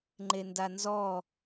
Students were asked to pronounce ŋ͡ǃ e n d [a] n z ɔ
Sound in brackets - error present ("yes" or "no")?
no